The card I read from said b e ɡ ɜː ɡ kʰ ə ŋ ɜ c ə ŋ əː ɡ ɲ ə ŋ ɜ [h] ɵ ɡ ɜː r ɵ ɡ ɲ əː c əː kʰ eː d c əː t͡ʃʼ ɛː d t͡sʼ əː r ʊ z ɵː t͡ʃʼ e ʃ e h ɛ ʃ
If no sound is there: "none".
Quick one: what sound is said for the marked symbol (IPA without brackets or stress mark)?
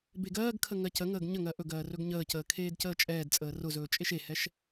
ʔ